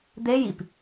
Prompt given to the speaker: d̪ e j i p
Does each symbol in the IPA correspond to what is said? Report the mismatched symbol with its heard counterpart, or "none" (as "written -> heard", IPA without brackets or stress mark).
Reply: none